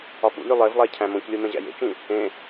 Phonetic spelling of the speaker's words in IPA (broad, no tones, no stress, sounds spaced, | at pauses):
ɒ f ṵ lʲ u lˠ e v lˠ æ cʰ æ̃ m õ c lʲ o m ẽ ʑ æ̰ j ḛ t͡ʃ ĩ | ẽ